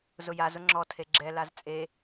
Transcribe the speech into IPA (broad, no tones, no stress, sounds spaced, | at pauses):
z ʊ j a z ʊ ŋ͡ǁ ɔ tʰ e ɡ͡ǁ ɛ l a z t͡sʼ e